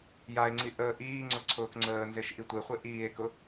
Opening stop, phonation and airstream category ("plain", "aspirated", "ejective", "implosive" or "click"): click